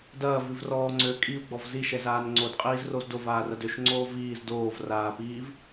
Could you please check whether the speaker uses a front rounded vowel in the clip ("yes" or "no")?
yes